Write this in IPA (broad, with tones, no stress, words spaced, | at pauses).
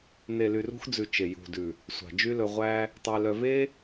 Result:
ne˨ly˨rṳ˧xd͡zʉ˨ t͡ʃe˨ jṳ˨dʉ˨ | sʷɑ̤˨d͡ʒy˦lɵ˧ʁʷæ˦ | tˤe˧lœ˧ ve˦